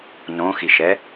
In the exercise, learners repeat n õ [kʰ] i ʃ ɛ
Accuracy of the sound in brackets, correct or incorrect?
incorrect